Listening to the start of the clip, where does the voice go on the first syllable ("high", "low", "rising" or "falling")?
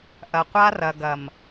low